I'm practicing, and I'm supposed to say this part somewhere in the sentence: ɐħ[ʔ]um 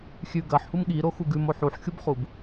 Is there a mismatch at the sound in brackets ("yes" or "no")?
yes